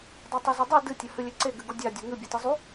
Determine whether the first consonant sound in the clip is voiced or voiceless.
voiced